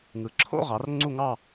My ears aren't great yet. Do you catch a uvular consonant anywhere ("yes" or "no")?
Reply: yes